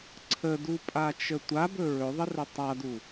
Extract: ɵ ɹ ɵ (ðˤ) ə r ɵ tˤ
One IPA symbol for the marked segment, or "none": ðˤ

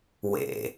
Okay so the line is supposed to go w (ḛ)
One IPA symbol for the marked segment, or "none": ḛ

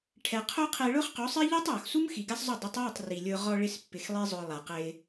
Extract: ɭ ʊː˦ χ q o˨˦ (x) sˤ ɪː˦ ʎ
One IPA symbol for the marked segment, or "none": none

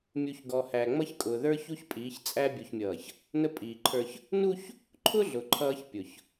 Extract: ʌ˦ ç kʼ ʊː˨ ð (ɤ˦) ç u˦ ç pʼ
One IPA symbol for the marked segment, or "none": ə˞˦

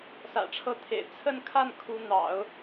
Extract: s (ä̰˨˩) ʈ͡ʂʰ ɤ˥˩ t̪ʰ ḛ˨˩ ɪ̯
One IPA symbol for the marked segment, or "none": ä̰˨˩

